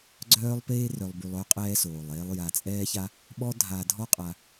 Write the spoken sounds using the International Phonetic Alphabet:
ɡ͡ǀ œː˥ lˠ p eː˥ r œ˧ lˠ b y˧ lˠ œ˥ qʼ ɛː˧ s oː˩ lˠ eː˧ lˠ j a˧ t͡sʼ ɛː˥ ç a˥ | ɓ ɔ˥ dʱ aː˧ dʱ ɔ˥ qʼ a˧

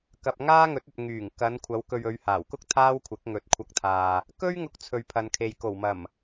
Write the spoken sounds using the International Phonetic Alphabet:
k ɐ˨ p̚ ŋ aː˥ ŋ ɵ˨˥ t̚ ɵ˨ t̚ ŋ yː˨˩ ŋ k ɐ˨˧ n kʷʰ ɐ˨˧ w k ɵ˧ ɥ ɵ˨˧ ɥ h aː˨˩ w k ʊ˥ k̚ t̪ʰ aː˥ w kʷʰ ɪ˨˥ k̚ ŋ ɵ˨˥ t̚ kʷʰ ɐ˧ k̚ t̪ʰ aː˨ | k ɵ˥ ɥ ŋ ʊ˧ k̚ t͡sʰ ɵ˨ ɥ pʰ ɐ˨ n kʰ e˨ j k o˨˩ w m ɐ˨˩ m

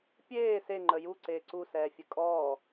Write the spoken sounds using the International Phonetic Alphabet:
pʲ eː s e ŋ͡ǃ ə j u ǀ eː ǀ u s ɛː fʲ ə kʼ ɔː

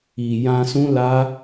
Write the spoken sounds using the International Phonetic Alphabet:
i˨ j ã˧ s ũ˦ l a˦

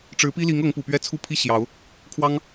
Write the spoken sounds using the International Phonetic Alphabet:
ʈ͡ʂ ɻ̩˧˥ p i˥ l i˧˥ ŋ ɤ˧˥ ŋ p u˨˩ p ɥ ɛ˥ t͡sʰ u˥˧ pʰ i˥˩ ɕ j ɑ˨˩˦ ʊ̯ | kʰ w ɑ˥ ŋ

